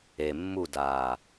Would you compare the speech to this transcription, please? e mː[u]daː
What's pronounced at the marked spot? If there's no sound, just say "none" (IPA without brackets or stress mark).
u